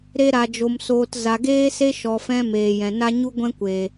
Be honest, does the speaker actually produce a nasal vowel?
yes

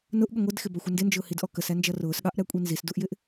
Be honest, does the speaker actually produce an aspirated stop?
no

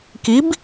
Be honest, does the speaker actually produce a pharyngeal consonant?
no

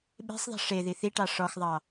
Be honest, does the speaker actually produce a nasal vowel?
no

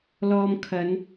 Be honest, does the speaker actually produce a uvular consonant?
no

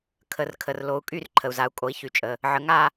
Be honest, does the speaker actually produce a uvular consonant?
no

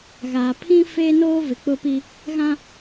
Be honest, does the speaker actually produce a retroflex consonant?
no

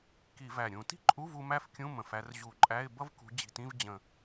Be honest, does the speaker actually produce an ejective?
yes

